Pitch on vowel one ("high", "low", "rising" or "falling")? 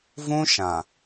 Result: high